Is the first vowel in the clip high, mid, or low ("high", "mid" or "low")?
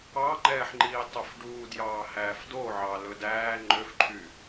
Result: low